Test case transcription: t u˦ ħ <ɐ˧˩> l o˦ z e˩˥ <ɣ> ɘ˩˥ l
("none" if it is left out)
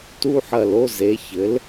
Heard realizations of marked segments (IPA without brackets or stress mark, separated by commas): ɐ˧˩, ç